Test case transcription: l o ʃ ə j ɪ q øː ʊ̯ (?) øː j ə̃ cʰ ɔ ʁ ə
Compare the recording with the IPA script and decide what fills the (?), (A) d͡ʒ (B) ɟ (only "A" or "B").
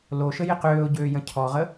B